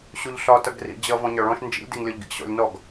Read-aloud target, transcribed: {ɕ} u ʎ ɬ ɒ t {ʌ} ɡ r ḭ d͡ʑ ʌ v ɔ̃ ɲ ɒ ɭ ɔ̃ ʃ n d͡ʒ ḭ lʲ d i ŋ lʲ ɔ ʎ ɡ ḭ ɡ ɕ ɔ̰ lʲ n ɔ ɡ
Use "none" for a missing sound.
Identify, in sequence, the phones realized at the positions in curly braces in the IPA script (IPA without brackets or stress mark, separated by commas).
ɕ, ʌ